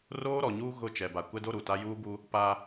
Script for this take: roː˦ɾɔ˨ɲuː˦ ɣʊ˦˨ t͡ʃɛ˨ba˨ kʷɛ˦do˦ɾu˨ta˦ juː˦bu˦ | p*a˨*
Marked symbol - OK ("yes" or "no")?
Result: no